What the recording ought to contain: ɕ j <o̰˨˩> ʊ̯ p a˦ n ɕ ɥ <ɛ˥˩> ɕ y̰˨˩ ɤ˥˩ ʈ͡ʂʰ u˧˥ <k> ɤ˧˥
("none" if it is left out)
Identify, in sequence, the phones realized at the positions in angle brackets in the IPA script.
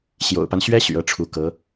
o̰˨˩, ɛ˥, k

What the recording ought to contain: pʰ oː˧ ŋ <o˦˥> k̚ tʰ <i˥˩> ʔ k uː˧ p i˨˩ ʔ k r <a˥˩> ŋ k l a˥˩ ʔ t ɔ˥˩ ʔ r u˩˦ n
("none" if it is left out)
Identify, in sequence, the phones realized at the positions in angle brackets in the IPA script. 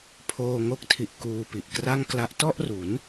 o˦˥, i˨˩, a˥˩

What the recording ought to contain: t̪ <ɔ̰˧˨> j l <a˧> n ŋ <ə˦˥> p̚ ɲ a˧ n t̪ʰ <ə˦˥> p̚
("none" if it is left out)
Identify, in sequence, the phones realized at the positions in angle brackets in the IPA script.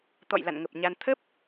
ɔ̰˧˨, a̰˧˨, ə˨˩, ə˦˥

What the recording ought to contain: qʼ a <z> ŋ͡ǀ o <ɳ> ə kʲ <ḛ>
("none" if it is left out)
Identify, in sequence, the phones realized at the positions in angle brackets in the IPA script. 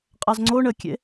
z, ɳ, ḛ

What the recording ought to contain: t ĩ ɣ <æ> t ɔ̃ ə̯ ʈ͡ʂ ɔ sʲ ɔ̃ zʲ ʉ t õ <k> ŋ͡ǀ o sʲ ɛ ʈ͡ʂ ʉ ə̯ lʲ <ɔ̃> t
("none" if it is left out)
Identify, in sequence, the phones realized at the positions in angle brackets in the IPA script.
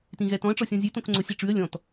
ɛ, k, ɔ̃

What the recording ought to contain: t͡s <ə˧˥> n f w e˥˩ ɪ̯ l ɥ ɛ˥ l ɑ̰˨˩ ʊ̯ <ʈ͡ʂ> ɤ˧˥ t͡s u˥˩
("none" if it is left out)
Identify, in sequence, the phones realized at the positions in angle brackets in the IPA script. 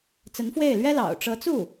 ə˧˥, ʈ͡ʂ

